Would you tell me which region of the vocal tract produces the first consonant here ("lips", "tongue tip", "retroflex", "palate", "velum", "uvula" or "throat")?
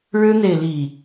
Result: retroflex